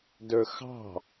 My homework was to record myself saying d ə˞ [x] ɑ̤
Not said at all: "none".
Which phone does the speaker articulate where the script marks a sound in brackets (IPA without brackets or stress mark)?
x